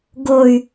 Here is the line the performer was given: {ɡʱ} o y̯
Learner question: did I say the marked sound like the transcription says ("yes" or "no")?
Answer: no